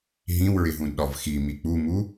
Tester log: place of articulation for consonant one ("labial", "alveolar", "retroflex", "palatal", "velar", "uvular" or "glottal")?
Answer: glottal